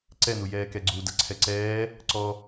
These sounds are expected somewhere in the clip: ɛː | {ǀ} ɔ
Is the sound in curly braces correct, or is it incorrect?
correct